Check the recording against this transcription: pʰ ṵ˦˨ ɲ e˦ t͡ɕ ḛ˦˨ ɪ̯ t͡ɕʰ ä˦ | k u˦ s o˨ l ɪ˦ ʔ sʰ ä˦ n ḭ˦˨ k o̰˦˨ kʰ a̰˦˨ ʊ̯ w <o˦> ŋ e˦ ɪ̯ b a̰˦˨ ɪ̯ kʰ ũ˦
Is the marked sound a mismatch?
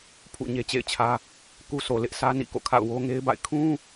no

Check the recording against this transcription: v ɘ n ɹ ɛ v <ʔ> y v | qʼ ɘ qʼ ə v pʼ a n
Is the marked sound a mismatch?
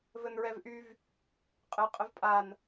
no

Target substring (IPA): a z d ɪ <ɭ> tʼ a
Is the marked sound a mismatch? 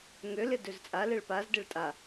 no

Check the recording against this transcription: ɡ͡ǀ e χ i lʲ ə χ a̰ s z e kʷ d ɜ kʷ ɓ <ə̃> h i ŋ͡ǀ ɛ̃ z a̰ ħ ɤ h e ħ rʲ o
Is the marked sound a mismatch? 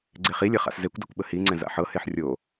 yes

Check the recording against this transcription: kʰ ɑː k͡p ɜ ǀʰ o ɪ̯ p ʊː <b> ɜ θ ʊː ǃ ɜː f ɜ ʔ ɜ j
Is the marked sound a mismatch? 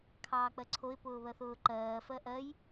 yes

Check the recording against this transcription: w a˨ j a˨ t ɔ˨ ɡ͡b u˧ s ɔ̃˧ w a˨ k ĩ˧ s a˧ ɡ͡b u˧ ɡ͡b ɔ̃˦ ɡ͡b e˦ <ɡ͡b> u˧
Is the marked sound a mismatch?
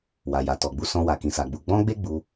no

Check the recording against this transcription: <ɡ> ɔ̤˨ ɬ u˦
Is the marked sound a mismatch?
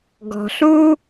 no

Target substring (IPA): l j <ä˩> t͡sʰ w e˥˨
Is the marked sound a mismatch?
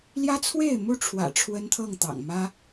yes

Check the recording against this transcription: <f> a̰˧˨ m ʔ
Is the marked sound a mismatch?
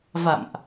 yes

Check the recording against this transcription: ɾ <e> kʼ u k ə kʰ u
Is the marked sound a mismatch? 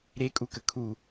no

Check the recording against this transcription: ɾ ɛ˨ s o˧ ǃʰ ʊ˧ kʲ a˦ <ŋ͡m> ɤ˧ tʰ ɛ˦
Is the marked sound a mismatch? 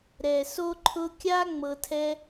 no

